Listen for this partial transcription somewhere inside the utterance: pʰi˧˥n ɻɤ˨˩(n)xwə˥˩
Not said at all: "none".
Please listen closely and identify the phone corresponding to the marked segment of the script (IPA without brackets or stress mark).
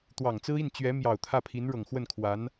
ŋ